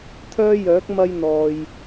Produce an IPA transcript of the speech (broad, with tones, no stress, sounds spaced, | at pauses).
t̪ʰ œː˥ j œː˨˥ k̚ m ɐ˥ j n̪ ɔː˨ j